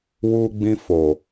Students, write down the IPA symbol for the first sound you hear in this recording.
w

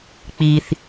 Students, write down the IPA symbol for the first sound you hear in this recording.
k͡p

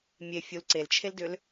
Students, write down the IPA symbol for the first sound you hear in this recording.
mʲ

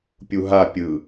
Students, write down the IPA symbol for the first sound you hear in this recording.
pʲ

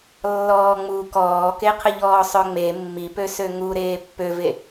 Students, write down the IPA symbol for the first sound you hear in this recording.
lː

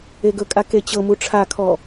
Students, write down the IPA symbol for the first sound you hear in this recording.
e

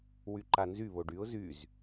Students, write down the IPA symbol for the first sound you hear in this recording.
w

